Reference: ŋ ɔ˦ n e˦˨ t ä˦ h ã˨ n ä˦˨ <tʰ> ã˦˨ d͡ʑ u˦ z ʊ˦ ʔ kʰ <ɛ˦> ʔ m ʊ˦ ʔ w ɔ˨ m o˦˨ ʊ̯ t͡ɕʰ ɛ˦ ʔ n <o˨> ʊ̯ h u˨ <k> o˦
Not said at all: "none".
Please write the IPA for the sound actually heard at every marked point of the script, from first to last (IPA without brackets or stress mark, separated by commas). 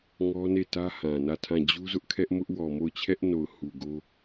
tʰ, ɛ˦, o˨, ɡ